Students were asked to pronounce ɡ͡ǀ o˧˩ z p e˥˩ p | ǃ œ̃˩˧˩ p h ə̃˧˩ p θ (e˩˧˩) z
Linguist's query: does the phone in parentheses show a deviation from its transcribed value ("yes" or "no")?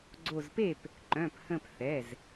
yes